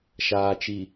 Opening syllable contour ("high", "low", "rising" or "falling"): low